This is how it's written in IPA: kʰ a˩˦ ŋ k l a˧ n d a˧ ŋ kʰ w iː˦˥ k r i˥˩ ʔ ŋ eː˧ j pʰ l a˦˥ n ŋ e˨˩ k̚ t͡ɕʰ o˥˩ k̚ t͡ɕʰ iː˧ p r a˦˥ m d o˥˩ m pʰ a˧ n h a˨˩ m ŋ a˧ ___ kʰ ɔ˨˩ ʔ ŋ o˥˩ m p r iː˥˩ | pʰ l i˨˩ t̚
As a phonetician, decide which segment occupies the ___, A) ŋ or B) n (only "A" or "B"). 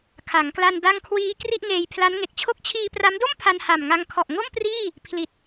A